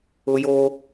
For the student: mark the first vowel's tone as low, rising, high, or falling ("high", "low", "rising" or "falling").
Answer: high